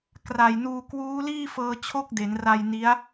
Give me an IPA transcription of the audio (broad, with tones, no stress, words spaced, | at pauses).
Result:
kra˨˩jnuː˧ kwuː˦˥liː˥˩fɤː˧ t͡ɕʰo˥˩k̚de˩˦nra˧j ni˦˥a̯